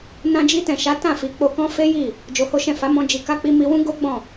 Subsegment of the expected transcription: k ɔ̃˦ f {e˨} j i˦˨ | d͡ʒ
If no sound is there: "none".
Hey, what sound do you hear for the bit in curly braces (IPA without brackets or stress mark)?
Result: e˦